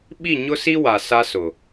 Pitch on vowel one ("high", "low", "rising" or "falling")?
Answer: falling